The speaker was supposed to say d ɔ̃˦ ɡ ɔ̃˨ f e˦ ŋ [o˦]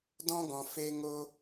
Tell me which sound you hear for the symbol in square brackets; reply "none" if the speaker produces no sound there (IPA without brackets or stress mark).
o˦